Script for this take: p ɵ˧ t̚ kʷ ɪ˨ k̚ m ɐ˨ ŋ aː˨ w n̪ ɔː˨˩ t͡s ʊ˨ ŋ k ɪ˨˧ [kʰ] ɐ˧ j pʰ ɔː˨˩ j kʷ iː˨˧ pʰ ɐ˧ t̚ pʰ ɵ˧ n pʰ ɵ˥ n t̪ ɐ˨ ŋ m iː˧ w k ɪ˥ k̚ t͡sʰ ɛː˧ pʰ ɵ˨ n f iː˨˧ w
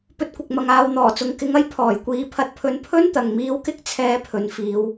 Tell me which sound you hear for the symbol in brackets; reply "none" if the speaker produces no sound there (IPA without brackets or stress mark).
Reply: ŋ